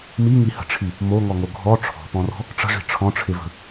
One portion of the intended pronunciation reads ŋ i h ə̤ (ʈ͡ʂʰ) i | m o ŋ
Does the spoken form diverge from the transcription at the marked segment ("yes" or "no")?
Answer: no